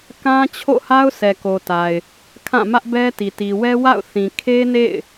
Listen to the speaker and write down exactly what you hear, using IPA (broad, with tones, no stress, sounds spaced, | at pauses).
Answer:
k ã˦ t͡ɕʰ o̰˦˨ h a˦ ʊ̯ s ɛ˨ k o˨ t a˨ ɪ̯ | kʰ ã˦˨ m ä˦ ʔ b ɛ˦ t i˨ t i˨ w ɛ˦ w a̰˦˨ ʊ̯ θ ĩ˨ kʰ e˦ n ḛ˦˨ ɪ̯